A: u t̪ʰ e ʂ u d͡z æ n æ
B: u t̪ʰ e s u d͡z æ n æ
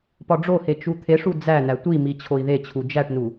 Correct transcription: A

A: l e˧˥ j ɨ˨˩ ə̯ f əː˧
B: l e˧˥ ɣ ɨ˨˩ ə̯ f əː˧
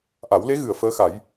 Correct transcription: B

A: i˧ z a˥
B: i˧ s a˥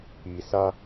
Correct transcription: B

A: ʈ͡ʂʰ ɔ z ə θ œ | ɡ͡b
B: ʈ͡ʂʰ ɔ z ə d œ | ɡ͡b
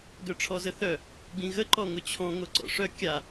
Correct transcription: A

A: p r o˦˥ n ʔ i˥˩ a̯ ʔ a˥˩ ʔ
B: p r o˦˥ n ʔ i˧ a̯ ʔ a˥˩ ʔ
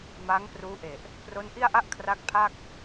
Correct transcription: A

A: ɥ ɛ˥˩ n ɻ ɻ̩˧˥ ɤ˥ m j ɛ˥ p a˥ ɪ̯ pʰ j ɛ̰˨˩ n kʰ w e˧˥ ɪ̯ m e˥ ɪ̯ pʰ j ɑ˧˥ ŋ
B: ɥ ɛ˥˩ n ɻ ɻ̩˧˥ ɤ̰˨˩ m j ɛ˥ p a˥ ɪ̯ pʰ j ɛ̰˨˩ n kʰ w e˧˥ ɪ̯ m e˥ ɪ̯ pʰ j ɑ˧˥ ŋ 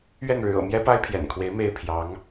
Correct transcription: B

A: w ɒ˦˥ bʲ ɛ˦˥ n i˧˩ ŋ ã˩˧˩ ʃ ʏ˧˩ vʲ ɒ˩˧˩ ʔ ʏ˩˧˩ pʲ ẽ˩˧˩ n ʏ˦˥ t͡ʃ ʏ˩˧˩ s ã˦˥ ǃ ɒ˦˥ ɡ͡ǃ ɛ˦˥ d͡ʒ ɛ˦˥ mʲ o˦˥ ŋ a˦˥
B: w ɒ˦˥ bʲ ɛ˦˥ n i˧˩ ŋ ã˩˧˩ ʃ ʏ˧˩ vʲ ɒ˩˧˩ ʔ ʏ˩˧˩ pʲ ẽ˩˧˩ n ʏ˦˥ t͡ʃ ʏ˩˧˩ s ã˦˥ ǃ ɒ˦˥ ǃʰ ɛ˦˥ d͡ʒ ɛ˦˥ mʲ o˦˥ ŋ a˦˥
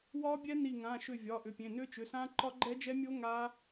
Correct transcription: A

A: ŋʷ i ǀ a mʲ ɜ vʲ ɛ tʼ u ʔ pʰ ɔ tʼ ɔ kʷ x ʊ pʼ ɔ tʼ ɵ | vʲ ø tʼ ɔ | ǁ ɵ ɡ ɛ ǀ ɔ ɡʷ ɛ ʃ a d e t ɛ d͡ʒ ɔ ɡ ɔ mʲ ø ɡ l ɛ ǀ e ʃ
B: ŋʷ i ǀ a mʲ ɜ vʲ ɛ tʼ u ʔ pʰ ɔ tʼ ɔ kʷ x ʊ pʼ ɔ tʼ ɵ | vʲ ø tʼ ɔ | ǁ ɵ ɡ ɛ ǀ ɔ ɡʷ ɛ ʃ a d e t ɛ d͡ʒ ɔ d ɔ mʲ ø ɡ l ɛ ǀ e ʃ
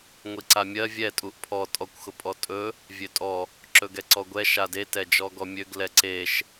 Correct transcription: A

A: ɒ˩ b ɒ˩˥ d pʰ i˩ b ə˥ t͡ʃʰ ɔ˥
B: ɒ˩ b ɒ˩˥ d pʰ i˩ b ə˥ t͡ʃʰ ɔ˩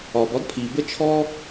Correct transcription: A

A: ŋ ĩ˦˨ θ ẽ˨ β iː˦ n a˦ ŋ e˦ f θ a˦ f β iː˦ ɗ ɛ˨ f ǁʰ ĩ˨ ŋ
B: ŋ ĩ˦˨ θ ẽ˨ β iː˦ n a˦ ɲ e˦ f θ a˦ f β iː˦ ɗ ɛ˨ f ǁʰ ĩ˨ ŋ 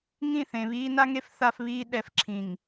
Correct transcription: A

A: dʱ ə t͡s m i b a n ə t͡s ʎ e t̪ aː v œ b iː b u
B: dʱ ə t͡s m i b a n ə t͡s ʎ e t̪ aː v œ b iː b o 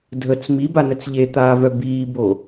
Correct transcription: B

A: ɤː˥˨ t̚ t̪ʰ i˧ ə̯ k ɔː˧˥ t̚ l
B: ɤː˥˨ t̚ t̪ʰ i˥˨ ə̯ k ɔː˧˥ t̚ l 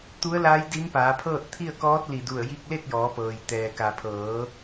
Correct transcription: B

